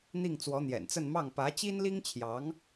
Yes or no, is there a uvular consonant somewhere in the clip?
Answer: no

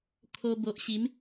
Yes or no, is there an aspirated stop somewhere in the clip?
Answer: yes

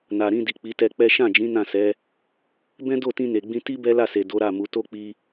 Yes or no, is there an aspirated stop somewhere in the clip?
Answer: no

